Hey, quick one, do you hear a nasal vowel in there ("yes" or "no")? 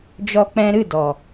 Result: yes